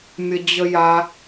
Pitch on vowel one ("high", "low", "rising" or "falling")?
low